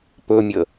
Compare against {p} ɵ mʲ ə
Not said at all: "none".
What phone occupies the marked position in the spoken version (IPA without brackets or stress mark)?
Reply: p